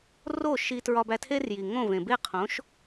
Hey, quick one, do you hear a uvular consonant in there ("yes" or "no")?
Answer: yes